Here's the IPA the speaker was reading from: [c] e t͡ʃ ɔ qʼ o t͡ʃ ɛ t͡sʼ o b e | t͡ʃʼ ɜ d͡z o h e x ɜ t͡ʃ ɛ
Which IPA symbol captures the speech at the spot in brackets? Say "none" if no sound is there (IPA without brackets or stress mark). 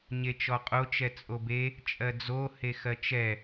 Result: ɲ